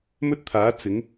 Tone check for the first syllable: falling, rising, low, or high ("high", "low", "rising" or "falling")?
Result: high